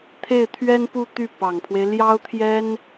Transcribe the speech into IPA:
t̪ʰ e˥˩ ɪ̯ t̪ʰ ɥ ɛ˥ n p u˥˧ t̪ y˥˩ p ɑ˨˩ ŋ pʰ w e˦ ɪ̯ l j ɑ˥ ʊ̯ t̪ʰ j ɛ˥ n

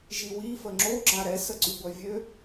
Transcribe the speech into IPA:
ʒ i w i f ə ŋ͡ǁ o ɡ͡ǁ a ɾ ɛ s ə ǀ y ɡʷ œ vʲ ø

